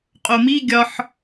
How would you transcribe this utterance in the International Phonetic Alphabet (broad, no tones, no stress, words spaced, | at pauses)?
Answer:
qʼomi ɡʲɒħ